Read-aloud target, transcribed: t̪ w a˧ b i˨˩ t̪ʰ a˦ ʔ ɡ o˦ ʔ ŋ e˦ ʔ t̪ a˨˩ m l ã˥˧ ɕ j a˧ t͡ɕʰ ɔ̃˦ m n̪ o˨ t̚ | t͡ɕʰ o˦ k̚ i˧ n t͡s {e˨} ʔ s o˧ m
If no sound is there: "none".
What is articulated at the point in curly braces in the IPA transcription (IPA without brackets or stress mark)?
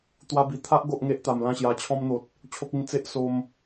e˦